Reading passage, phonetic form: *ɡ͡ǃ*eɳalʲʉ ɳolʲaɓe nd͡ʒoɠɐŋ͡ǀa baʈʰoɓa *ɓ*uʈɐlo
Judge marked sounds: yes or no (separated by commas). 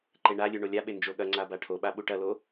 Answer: no, yes